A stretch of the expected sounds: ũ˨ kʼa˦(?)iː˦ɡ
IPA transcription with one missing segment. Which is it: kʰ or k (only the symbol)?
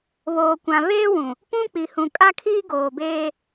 kʰ